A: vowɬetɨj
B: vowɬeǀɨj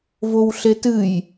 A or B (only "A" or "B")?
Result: A